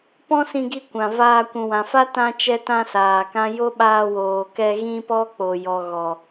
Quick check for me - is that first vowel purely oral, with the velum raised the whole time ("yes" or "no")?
no